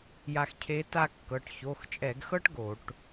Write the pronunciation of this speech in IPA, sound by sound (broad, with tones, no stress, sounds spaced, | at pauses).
j a˧ x cʰ e˧˥ t a˥˧ kː ɤ˩˧˩ ʈ ç o˩˧˩ x t͡ʃʼ ɛ˧˩˧ ɡ x ɤ˥ ʈ ɡ o˧˩˧ ʈ